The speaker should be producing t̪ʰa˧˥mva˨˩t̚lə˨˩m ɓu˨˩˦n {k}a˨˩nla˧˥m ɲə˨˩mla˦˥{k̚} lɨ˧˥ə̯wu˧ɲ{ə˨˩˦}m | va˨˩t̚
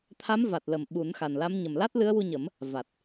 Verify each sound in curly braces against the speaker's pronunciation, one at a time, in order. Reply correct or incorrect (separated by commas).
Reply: incorrect, incorrect, correct